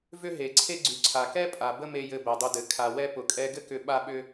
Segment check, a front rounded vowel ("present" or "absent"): present